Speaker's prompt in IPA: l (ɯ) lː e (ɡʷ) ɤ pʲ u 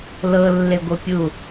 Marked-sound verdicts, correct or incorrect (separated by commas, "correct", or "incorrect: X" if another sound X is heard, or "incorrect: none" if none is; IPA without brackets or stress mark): incorrect: ɤ, correct